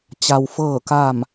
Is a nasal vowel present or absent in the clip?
absent